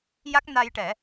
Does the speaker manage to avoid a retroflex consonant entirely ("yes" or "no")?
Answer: no